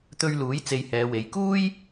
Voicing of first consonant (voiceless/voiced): voiceless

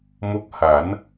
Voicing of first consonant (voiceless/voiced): voiced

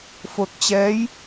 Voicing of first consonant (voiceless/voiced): voiceless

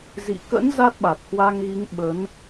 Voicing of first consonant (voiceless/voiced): voiced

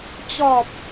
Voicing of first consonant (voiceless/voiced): voiceless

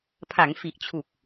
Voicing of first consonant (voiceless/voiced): voiceless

